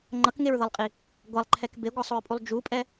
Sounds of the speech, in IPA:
ŋ͡ǃ ʌ k ŋ e ɹ ð ʌ lˠ qʼ i | ɡʷ a lˠ ǃʰ ɛ k b e ɡʷ ʌ sˤ o ɹ pʼ u lˠ d͡ʒ u pʼ ɛ

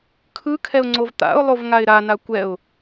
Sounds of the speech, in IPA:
kʰ ɯ kʰ ɛ ʊ̯ ŋ͡ǀ o v t̪ a̰ ʊ̯ lˠ o v ŋ a ɪ̯ ɾ a n a kʷ ɛ ʊ̯

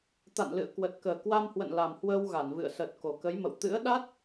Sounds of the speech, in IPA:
t̪ a̰˧˨ n l ɨ̰˧˨ ə̯ k w ə˨˩ t̚ k əː˨˩ k w a˧ m h w ə̰˧˨ n l a˨˩ m h w əː˧ w ɣ a˧˩ n v ɨ̰˧˨ ə̯ s ə˨˩ t̚ k o˨˩ k ə˨˦ j m ə̰˧˨ w t̪ ɨ̰˧˥ ə̯ ɗ a˦˥ t̚

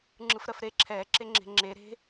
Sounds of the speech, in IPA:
ŋ͡ǁ ɯ f ɾ ɜ f ɾ e ǁʰ ɛː ǁ e ŋ͡ǁ e̤ ŋ͡ǁ e ɾ e̤

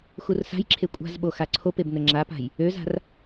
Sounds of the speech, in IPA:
x u r s a̤ j ǁʰ e kʷʼ a̤ z ɓ o x a ǀʰ o p e b n ə ŋ͡ǁ a p a̤ j | ø z a̤ r

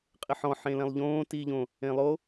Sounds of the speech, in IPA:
qʼ ɪ ħ ɔ̃ ħ ẽ l ɛ̃ lˠ ʎ õː t iː ʎ õ | ẽ lˠ o

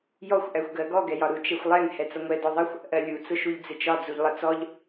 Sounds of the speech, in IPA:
j ɔ xʷ ʔ æ xʷ ɡ ɜ ɡ ɔ ɡ ɛ j ɒ ɾ u t͡ʃ ɛ xʷ lˠ ɛ ŋ h ɛ t͡s ʌ ŋʷ ɛ d ɔ ðˤ ʌ xʷ | ʔ ɜ lʲ u t͡s ʊ ʃ u ʎ d͡z ɪ t͡ʃ ɒ d͡z u ʎ lˠ ʌ t͡s ɔ ʎ

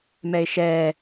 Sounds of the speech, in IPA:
m ɛ ɪ̯ ʃ ɛː

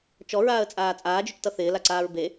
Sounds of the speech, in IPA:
t͡ʃ ɔ ɹ aː ə̯ t͡sʼ aː t͡sʼ aː d͡ʒ ʏ t͡ʃ t ʌ θ ɪː l a ǀ aː ɹ b e

